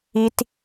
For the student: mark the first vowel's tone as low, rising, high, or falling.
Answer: high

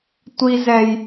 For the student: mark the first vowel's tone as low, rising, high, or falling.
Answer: high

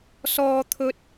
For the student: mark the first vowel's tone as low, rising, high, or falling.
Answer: high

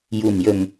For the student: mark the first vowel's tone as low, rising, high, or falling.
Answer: low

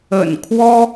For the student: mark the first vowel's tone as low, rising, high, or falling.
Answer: low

